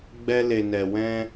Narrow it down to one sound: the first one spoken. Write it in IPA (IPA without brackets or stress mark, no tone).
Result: ɡ͡b